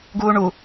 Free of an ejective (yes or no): yes